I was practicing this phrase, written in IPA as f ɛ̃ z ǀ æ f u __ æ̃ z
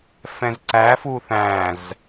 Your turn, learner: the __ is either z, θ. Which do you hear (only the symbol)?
θ